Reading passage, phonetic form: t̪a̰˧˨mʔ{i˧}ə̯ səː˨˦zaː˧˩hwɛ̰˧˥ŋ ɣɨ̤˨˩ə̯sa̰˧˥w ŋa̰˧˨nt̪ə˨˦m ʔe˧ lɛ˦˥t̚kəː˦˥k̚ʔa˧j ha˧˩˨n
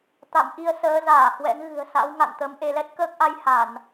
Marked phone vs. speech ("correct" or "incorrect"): correct